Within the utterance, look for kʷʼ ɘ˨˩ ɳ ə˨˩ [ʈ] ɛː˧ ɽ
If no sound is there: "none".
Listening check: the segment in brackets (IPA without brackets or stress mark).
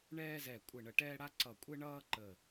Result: ʈ